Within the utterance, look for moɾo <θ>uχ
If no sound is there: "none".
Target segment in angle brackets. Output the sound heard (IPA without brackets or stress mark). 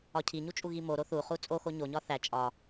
θ